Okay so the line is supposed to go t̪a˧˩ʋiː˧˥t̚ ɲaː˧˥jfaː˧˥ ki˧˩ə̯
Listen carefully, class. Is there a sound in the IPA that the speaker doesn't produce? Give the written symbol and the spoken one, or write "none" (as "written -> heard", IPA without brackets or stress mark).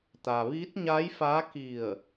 a˧˩ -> a˩